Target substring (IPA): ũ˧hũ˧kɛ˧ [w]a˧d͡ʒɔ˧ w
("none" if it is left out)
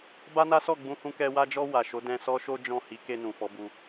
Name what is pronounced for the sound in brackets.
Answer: w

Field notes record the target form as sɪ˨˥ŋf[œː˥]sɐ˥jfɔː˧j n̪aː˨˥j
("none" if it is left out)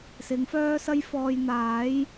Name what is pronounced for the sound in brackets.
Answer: œː˥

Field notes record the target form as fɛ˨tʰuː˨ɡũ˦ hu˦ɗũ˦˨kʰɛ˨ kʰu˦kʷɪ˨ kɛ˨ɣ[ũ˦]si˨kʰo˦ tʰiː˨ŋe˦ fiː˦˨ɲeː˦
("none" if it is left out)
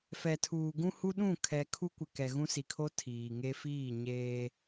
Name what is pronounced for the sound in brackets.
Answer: ũ˦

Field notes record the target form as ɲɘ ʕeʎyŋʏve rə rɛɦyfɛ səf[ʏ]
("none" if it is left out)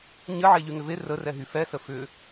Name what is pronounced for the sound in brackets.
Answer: ʏ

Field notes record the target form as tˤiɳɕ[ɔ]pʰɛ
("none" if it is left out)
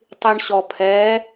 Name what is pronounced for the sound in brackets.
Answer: ɔ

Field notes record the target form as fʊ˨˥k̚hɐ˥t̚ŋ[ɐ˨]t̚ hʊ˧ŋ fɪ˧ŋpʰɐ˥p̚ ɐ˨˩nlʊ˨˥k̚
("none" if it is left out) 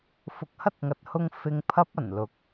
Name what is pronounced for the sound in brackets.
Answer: ɐ˨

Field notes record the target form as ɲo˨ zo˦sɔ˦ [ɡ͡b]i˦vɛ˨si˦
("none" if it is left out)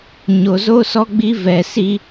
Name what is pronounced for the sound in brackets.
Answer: ɡ͡b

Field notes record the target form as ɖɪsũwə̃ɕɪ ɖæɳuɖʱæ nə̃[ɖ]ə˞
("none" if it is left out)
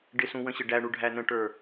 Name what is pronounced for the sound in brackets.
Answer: ʈ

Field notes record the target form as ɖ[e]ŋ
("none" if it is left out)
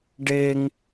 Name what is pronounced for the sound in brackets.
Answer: e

